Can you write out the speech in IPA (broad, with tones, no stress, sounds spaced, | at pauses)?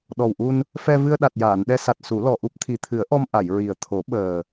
ɗ ɔ˨˩ w ʔ u˧ n | f ɛ˧ v ɨ˧ ə̯ ɗ a˨˩ t̚ j aː˨˩˨ n ɗ ɛ˧ s a˨˩ t̚ s u˨˩˦ l ɔ˨˩ ʔ u˦˥ p̚ t̪ʰ i˨˩ t̪ʰ ɨ˨˩˦ ə̯ ʔ ɔ˧ m ʔ a˨˩˨ j ɹ i˨˩ ə̯ t̪ʰ o˨˩˦ ɓ əː˨˩